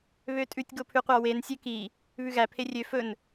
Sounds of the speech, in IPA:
βøtʼʉtʲ ɡopʰʉqʷɑwen sʲøki | βʉɣæ pʰerʲø fɵn

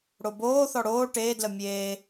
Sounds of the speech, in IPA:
ɽoboːθɔ ɽoː ʈeːdlə mʲeː

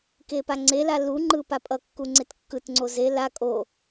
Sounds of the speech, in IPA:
kepaŋ͡ǀela luŋ͡ǃɯ papʼʌkːu ŋ͡ǀetkːɯtŋ͡ǀo ze la kʼo

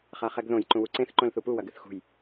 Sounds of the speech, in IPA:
χaχɛɡðõj ǃũwuǀẽθ ǃõlθupu wɐɡɨθxṳj

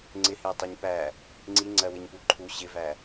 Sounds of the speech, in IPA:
ŋ͡ǀɪhɪwtˤiɲ pæ | ŋ͡ǀiŋ͡ǀɜwɪɲpu ǃʰu ɕɪvæ

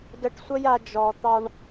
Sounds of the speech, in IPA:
də˧ʈsʷə˦ja˧ d͡ʒɔ˨ t̪ɑ˧ɳ

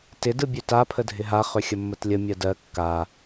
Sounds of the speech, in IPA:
tɪ dɯbʲøta pʰədʱɪɦa χøxʲəmːətlʲə mʲɜdɜ kːa

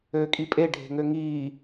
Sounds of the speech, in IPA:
øːkʼipʼe ɖʱe̤ŋøŋiː

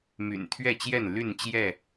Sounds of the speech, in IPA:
my̰˨˩nt̪ʰɥɛ˥˨t͡ɕjɛ˥˨n ly˥˨nt͡ɕjɛ˥˨

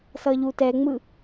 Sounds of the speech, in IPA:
sʌʎutɛŋ͡mɯ

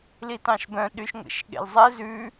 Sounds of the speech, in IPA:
litɑ̃ʃbœ̃ ɗyʃŋʷḛʃɠḛlzˤɛ zʉ

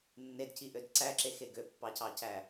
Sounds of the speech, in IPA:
nːedciʔød ǀæǁexe ɡøpːɑcɑcæ

